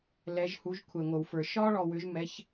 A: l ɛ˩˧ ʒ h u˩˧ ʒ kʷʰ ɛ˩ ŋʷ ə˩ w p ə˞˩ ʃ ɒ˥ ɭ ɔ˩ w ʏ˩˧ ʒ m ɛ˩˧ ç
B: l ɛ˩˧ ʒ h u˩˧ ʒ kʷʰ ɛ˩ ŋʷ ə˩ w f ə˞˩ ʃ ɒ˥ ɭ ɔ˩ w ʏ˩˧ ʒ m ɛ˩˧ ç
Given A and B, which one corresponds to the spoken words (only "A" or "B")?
B